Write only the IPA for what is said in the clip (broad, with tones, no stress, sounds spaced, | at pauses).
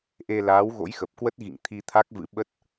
ʔ e˧ l aː˨˦ w ɣ o̰˧˥ j x ə˨˩ p̚ k w ə˦˥ t̚ ɣ ḭ˧˨ ŋ t̪ʰ i˧ t̪ʰ a˦˥ k̚ v ɨ̰˧˥ ɓ ə˦˥ t̚